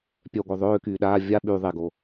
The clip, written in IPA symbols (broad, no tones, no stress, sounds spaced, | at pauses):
pʲ œ ɡʷ œ ðˤ øː k yː ɗ aː vʲ a ɓ y ðˤ e ɡ o